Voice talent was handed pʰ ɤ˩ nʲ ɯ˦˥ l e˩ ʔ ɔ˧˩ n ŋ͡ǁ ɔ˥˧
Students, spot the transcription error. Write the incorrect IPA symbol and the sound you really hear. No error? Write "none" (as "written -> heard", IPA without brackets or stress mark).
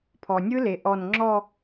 ɤ˩ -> ɔ˩